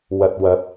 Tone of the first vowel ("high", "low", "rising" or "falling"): low